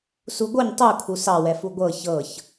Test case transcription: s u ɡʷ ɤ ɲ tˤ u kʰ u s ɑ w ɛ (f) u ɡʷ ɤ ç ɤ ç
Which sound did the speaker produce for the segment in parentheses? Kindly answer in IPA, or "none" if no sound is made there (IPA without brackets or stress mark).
f